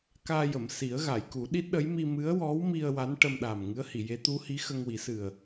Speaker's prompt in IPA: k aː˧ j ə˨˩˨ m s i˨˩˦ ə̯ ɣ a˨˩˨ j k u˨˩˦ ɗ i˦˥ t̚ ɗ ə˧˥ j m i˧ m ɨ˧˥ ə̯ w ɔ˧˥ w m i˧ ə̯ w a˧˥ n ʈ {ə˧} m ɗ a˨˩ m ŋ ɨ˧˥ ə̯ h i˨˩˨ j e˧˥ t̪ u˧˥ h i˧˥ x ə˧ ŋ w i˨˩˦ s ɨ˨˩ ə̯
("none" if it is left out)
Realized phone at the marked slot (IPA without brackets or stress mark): ə˧